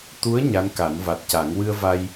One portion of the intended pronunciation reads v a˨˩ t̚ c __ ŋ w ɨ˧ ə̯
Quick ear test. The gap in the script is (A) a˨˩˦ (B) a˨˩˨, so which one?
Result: A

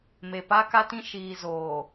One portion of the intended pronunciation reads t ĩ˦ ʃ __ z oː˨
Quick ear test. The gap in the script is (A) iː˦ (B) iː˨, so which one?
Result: B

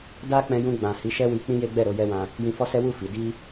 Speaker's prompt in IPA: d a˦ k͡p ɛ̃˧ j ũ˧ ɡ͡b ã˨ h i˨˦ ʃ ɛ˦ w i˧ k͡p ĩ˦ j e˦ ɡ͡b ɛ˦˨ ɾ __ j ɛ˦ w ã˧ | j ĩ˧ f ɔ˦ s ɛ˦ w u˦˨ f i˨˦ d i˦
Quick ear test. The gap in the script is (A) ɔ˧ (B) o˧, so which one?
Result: B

